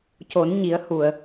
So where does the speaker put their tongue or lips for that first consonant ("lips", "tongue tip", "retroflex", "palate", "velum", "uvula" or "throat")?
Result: palate